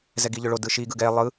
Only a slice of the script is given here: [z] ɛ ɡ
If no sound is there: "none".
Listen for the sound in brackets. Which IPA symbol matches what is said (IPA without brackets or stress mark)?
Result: z